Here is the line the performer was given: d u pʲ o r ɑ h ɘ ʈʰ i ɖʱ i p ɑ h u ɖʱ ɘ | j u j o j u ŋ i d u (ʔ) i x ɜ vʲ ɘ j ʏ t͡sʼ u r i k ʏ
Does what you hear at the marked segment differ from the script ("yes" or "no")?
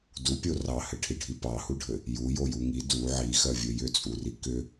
yes